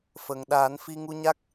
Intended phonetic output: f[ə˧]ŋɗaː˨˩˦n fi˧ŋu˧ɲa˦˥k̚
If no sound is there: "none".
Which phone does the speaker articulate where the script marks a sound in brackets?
ə˨˩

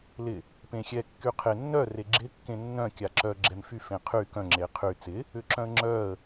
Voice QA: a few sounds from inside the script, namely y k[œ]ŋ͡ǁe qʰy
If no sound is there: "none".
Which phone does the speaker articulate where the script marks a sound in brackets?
œ̃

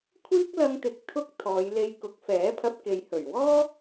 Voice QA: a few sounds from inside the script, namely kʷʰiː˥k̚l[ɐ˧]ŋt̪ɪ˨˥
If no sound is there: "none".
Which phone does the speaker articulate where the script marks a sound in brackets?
ɐ˧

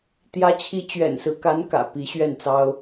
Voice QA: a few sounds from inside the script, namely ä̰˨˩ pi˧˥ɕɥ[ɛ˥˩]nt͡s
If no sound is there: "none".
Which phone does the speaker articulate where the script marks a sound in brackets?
ɛ˥˩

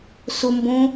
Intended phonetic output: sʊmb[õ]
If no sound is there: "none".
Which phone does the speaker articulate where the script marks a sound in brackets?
õ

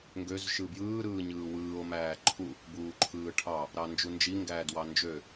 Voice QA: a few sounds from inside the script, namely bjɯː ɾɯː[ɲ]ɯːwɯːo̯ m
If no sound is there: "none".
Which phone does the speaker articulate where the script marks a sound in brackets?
ɲ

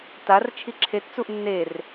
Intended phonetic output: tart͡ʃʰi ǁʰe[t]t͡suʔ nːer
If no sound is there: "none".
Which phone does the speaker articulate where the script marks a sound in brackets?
t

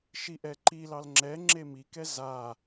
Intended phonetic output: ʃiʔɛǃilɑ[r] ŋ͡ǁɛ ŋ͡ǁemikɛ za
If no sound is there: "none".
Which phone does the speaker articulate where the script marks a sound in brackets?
l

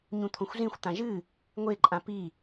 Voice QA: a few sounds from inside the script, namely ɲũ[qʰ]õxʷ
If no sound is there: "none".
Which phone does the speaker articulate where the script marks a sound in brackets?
t̪ʰ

